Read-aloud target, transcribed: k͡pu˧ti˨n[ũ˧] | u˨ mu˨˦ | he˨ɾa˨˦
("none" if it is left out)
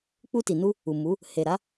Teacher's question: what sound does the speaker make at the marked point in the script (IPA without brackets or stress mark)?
u˧